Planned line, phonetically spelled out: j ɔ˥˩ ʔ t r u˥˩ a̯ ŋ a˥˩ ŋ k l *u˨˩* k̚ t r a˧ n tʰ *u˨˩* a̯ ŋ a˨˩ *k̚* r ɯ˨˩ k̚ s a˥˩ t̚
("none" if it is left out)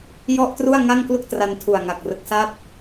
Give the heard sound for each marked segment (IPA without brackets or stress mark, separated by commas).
u˥˩, u˨˩, k̚